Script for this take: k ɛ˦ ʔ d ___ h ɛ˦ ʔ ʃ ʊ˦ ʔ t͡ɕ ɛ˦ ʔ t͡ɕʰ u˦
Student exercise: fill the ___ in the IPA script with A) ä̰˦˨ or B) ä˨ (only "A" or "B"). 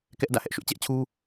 A